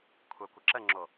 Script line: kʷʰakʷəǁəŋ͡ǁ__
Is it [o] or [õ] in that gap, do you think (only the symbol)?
o